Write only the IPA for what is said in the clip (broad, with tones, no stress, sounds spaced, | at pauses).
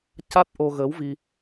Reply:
c a˦˥ t̚ ʔ o˧ ɣ əː˧˥ w v i˧